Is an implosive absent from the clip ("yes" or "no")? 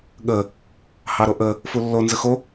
no